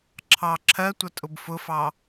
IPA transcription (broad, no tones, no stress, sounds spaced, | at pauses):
ǁʰ ɑ ǁʰ ɜ tʷ ʌ tʼ ʊ b f ʊ f ɑ